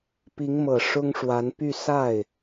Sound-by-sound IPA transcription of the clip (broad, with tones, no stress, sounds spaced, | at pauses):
p i˧˥ ŋ m ɤ˨˩ ʂ ʊ˥ ŋ ʂ w a˧˥ n p y˥˧ s a˥˩ ɪ̯